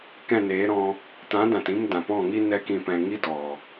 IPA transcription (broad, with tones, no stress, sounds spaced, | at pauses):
k ɛ̃˦˨ n eː˨˦ ɾ ɔ̃˧ | t ã˨˦ d ã˨ t ĩ˧ m d ã˨ p ɔ̃˦˨ ŋ i˦ n ɛ˦ k ĩ˧ p ɛ̃˧ ŋ i˦ d ɔ˨